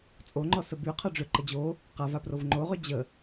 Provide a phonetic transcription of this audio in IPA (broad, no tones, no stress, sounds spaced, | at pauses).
t͡sʼ o ŋ͡ǃ ɔ s ə b y qʰ ɑ ɖ͡ʐ ʏ ǃ ə d͡ʑ o | q a v a p r o v ŋ͡ǃ o ʁ ʏ d͡ʑ ə